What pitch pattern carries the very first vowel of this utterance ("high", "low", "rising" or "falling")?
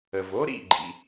low